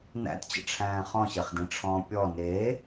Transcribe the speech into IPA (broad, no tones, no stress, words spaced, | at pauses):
næ̰tt͡ɕə̰ʈ͡ʂʰæ̃ː χɔ̃ɕeχdĩʈ͡ʂʰɔ̃ː pʲɔ ne